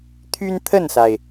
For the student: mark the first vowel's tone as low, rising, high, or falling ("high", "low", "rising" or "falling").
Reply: high